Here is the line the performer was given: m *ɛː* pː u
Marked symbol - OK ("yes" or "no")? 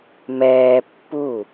yes